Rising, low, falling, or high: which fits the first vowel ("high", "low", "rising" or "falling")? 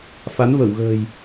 rising